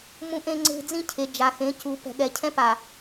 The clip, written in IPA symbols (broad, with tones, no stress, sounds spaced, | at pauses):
m ũ˦ ʔ ẽ˦ ŋ͡ǀ e̤˦ d͡z ĩ˦ cʰ e˨ d͡ʒ a˨ x ẽ˨˦ c u˨ p ɛ̤˨ ɠ ɛ˨ cʰ ɛ̃˦ p a˨